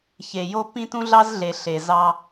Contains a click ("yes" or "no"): no